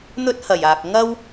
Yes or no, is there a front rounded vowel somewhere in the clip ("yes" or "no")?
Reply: no